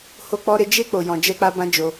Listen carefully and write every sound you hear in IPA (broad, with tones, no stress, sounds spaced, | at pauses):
h o˧ k͡p ɔ˧ ɾ e˧ d͡ʒ e˧ k͡p o˨ j ɔ̃˨ d͡ʒ ɛ˧ k͡p a˧ b ã˦ d͡ʒ o˧